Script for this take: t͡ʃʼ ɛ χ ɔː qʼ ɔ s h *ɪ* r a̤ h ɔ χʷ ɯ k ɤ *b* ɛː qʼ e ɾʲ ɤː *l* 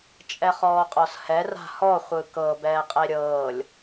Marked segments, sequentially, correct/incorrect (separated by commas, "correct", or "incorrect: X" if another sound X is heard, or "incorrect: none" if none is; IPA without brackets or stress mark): incorrect: ɛ, correct, incorrect: lʲ